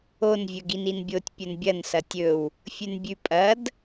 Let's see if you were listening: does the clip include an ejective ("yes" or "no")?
yes